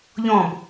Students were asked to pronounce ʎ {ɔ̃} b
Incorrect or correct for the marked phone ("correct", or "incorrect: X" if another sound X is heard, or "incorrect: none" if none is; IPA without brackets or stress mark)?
correct